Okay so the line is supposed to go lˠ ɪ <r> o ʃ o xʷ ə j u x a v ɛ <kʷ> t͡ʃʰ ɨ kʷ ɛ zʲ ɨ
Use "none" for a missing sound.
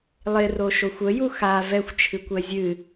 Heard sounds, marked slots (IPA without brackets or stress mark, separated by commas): r, xʷ